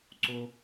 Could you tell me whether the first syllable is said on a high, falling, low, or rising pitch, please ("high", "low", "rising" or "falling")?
high